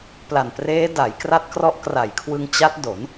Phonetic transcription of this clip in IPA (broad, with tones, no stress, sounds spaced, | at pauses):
p l a˨˩ n p r eː˦˥ d a˩˦ j k r a˦˥ t̚ k r ɔ˦˥ ʔ k r a˨˩ j kʰ w ɯ˧ ŋ t͡ɕ a˦˥ t̚ d o˩˦ n